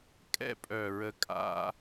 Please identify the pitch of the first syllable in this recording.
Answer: high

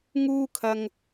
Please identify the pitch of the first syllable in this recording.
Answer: high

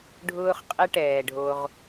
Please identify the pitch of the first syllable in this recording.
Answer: high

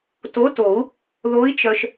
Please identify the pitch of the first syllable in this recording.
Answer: rising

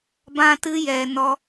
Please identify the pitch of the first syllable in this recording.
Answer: high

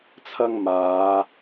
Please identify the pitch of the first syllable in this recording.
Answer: high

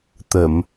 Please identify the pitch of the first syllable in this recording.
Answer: low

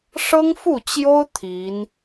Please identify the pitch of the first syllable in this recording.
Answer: high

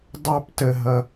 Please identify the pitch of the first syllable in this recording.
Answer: high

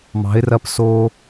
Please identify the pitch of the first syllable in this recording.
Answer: rising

